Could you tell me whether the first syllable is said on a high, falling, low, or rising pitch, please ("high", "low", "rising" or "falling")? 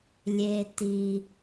low